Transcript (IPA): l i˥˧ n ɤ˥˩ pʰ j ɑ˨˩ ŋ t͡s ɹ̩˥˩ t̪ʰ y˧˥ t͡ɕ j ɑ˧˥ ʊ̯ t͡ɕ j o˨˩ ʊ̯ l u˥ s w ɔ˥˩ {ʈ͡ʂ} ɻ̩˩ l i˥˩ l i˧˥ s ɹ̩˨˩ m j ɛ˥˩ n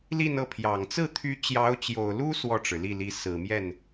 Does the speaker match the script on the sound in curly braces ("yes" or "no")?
yes